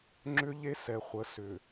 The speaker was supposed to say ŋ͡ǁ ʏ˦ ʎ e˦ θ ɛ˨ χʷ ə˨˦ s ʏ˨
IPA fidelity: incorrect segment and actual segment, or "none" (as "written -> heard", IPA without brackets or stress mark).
θ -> s